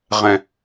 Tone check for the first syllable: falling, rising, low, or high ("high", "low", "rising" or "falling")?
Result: low